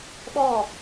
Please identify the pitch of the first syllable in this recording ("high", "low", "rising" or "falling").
falling